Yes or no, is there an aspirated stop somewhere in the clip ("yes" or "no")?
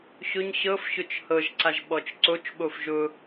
no